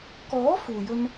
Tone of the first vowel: rising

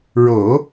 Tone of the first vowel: low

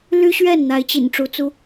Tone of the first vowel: high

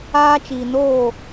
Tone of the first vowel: high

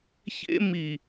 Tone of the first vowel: high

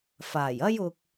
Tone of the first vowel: low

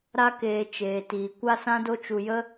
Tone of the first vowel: high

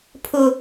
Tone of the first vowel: low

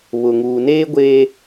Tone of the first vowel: low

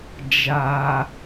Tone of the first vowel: low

